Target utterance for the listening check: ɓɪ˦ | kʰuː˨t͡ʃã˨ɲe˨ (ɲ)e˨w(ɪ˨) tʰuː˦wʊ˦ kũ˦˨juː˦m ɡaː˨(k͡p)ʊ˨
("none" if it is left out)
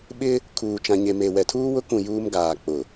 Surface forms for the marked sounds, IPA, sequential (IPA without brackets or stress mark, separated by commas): m, ɛ˨, k͡p